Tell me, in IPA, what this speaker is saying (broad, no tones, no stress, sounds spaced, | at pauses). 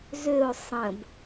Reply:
z ø ʊ̯ sˤ ə̃ b